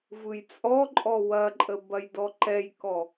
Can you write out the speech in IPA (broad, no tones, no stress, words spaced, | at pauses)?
vɯjt͡sʼɔǃʼɔ wɐǃʼə bɐjdɔǃɛjkɔ